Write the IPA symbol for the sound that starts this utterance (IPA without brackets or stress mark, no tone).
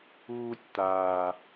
uː